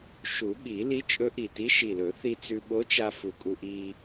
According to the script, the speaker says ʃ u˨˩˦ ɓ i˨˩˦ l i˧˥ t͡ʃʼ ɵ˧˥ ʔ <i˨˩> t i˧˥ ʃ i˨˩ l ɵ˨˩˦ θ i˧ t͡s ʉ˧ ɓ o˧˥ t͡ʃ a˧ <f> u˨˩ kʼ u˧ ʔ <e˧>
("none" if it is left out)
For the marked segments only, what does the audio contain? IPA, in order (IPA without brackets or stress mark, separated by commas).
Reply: i˨˩, f, i˧